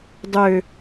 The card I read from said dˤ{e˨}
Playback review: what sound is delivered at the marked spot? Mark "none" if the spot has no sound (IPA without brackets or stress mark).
ø˨